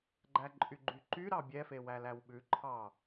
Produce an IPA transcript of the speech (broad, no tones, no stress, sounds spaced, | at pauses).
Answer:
ɡ͡ǃ æ ǃʼ y ɡ͡ǃ y ǃ y ɾ ɑ bʲ ɛ f e w æ l æ w ɓ ʉ ǃʰ ɑ